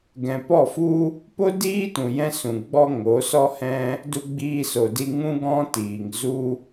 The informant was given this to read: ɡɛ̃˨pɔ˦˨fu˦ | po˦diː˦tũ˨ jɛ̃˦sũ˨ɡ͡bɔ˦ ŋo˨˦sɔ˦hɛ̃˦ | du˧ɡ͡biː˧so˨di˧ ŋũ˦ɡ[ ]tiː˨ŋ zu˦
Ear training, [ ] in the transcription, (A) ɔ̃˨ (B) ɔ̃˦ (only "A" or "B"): B